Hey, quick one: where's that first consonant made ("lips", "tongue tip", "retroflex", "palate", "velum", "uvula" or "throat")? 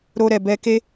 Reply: tongue tip